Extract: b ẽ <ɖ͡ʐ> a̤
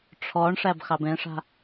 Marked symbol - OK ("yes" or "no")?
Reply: no